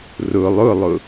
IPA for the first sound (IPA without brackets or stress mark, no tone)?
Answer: r